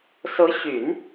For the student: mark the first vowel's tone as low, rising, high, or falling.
rising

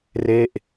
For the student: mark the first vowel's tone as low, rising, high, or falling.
falling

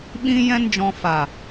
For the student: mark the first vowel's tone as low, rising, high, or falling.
high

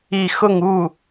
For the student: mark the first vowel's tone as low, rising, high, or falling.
falling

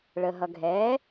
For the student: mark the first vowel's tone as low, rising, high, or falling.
low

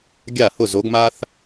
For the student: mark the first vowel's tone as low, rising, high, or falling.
falling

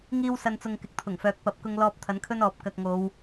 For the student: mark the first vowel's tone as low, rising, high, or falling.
high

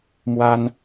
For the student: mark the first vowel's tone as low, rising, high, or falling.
high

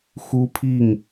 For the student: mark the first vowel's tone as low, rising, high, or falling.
high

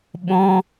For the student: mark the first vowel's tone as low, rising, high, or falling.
high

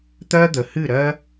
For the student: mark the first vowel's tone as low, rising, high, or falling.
high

